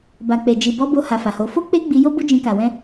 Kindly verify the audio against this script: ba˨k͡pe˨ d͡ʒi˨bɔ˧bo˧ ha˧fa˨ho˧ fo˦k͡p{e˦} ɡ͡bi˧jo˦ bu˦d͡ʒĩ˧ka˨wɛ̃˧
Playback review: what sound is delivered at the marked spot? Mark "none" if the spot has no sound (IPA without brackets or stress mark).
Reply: e˦